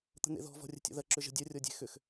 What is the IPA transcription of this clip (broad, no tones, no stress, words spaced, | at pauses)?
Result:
t̪ə̤n̪ḛðɔ̤ vɔ̤rʲə̤tʲɔ̰ðɐ ǁʏʒə̤dʲɐ rʲɔdʲe̤xʏx